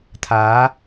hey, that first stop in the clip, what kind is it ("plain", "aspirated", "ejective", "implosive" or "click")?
aspirated